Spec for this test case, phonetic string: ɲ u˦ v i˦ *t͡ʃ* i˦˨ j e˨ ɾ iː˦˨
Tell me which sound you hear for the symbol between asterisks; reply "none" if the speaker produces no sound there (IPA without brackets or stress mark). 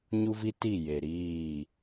t